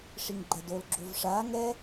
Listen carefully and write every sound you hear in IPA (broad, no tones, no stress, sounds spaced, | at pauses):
ʂ i ŋ ɡ͡ǃ ɛ d o l ɡ͡ǁ o v ʂ a ŋ ɛ